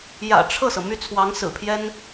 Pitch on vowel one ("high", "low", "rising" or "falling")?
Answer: low